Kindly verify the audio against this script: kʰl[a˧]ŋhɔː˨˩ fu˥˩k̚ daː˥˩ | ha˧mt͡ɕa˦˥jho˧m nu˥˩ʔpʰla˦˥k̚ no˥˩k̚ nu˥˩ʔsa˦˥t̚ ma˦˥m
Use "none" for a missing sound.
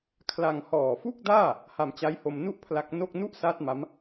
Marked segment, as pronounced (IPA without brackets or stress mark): a˧